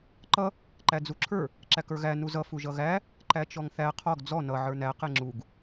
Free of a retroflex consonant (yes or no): yes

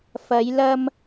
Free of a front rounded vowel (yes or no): yes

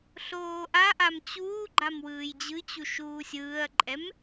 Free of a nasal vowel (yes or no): yes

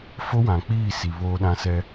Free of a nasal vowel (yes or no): no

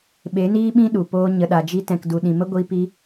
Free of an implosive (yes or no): no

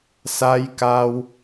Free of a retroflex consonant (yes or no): yes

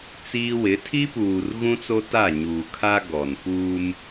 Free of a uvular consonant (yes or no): yes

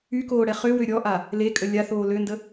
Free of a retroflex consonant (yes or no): no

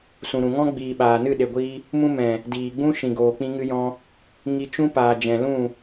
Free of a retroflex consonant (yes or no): yes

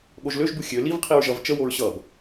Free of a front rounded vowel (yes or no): no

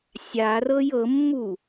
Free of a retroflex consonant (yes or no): yes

